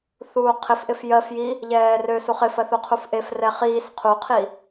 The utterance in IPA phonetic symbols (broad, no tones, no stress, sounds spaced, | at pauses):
θ uː qʰ ɪ f ʔ ɪ f j ɜ f j i | ʎ ɛː r ø s u χ ɪ f ɜ θ u qʰ u f ʔ e f r ɛ χ iː s qʰ u qʰ i